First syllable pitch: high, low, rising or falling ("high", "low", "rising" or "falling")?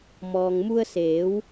low